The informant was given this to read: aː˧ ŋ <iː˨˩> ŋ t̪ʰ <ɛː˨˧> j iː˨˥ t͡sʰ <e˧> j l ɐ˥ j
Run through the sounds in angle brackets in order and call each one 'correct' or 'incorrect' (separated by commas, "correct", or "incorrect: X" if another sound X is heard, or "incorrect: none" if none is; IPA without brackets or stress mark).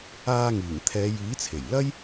correct, correct, incorrect: e˨˩